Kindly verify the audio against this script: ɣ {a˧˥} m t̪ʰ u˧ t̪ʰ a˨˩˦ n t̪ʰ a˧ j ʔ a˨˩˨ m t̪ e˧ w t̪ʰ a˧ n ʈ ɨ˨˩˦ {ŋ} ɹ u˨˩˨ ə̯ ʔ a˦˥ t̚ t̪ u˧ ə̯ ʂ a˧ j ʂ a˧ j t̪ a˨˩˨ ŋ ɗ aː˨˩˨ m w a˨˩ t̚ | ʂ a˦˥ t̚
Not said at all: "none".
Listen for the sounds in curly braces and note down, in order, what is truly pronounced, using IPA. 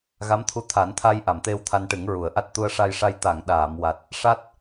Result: a˧˥, ŋ

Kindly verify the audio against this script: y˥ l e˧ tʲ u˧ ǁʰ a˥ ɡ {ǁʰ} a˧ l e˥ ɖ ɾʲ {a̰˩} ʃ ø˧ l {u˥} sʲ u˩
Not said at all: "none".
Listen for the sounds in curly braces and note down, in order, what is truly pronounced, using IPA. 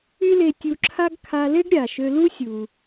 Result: kʰ, a˩, u˥

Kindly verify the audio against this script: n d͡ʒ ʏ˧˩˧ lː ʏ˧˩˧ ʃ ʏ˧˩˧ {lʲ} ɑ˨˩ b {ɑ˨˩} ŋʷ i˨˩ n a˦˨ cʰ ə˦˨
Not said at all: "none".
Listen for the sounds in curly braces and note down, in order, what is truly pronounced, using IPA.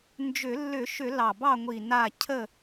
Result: l, ɑ˦˨

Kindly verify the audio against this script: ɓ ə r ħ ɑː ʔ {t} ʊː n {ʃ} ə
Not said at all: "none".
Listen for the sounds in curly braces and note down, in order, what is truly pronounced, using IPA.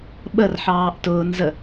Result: t, z

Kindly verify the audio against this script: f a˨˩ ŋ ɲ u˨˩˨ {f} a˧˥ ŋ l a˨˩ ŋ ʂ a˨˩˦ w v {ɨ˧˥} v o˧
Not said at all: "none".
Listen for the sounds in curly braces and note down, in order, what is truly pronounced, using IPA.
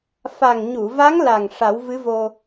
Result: v, ɨ˧˥

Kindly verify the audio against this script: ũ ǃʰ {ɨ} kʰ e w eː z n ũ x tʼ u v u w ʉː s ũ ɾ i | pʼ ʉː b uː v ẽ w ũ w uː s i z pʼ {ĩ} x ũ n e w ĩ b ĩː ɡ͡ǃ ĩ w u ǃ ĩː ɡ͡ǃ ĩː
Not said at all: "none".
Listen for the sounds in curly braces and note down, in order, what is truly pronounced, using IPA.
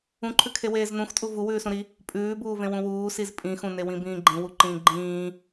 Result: ʉ, ĩ

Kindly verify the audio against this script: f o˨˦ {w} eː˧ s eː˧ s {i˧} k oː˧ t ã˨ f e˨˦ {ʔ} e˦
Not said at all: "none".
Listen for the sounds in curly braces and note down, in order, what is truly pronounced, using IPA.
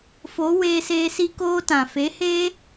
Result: w, i˧, h

